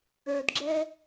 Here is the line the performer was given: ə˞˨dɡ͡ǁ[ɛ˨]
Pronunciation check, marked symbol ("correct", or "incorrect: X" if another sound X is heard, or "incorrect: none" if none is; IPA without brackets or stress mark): incorrect: ɛ˦